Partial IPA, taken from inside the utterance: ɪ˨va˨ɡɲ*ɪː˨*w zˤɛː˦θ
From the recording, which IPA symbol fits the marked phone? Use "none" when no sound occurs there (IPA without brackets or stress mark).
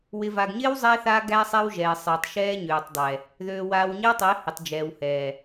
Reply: ɪː˦